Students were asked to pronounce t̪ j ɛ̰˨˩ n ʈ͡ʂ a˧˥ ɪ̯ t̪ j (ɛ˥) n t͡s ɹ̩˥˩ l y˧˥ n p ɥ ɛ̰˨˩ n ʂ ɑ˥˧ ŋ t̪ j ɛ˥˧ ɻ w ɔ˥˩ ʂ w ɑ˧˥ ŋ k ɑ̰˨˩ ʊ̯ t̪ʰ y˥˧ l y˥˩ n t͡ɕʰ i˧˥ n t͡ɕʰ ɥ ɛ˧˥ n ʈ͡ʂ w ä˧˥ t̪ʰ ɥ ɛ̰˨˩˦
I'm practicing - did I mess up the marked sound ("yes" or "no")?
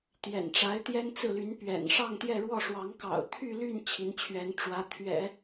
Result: no